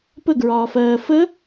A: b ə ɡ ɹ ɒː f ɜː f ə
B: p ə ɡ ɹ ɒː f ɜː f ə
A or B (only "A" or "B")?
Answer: B